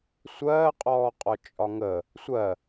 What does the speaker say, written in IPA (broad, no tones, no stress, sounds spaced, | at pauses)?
sʷ ɜː qʼ ɔː qʼ ɔ t͡ʃʼ ɒ ŋ ə | sʷ ɜ